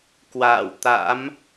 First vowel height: low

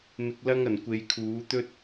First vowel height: high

